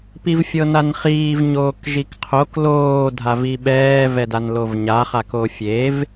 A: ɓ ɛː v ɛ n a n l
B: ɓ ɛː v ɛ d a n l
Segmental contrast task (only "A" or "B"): B